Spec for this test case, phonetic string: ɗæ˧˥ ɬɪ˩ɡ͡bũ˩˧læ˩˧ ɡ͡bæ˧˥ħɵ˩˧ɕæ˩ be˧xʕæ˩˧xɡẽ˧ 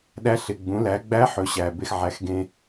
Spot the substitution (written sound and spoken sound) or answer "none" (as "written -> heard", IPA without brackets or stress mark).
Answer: none